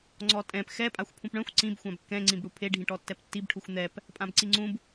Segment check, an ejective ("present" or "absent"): present